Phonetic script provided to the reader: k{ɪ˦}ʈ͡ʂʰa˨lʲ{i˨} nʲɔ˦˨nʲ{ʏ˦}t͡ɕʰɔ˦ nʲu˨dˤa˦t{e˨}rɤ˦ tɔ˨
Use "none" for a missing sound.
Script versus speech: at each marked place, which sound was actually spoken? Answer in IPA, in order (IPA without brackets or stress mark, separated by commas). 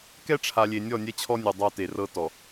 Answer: ɛ˦, e˨, ɛ˦, e˨